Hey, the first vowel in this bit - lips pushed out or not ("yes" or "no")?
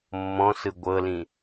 yes